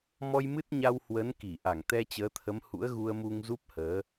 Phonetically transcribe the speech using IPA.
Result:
mɔ˧jmɨ˦˥t̚ɲa˧w hwə˨˦nki˧˩ ʔa˧˩ŋt̪ɛ˧t͡ɕəː˨˦t̪ʰə˨˦m hṵ˧˥ə̯ɣu˧ə̯mu˧ŋ zu˦˥p̚həː˨˦

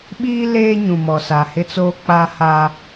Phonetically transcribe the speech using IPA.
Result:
ɓiː˦leː˦ɲũ˨ mɔ˨sa˨hɪ˦t͡soː˦ k͡pa˦ha˦

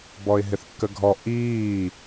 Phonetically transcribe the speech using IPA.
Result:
bɔɪ̯ɦɪθkːəɡʱɔ ʔiː

